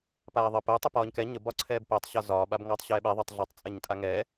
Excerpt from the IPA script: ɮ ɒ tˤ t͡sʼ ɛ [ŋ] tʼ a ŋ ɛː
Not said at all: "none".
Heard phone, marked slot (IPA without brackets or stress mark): ɲ